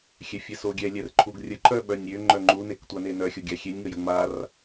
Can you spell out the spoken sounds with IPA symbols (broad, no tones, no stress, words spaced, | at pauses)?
xʲɛfʲɛsoɡʲɛ lʲɛrǃʰuɡrʲə ǃœɓœnʲɾʲø ŋ͡ǃœŋ͡ǃu nektʷanenœ xʲoɡʲaxʲenʲ ŋəjəŋ͡mar